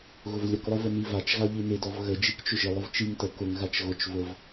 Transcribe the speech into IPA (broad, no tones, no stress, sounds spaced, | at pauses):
ɣ ʊ v lʲ ə k lˠ ɪ v ə n i v a t͡ʃ ɣ a ʎ i n ɪ d ɔ v ɣ ə d͡ʒ i k t͡ʃ ʏ ʒ ɪ lˠ ʊ v t͡ʃ i ŋ t ə k ʊ ŋ ɣ a t͡ʃ ɣ ʊ t͡ʃ v ʊ v